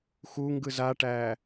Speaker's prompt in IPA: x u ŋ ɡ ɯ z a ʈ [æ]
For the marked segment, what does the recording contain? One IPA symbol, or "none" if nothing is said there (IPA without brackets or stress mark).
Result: æ